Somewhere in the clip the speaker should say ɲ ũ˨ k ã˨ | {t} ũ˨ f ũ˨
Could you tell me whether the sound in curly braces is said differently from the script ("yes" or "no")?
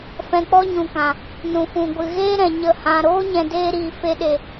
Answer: yes